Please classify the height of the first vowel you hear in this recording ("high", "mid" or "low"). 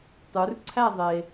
high